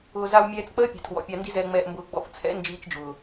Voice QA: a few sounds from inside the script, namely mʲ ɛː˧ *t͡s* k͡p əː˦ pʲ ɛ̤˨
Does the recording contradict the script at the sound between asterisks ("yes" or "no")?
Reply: no